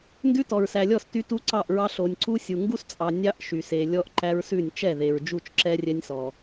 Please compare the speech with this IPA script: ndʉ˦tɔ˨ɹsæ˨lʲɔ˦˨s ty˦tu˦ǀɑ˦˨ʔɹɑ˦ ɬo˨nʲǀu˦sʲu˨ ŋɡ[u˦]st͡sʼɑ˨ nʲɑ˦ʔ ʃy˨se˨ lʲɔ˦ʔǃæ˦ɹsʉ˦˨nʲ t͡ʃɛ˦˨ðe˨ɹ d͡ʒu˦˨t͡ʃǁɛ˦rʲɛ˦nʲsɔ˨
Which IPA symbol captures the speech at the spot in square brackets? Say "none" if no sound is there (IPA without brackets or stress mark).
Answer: u˦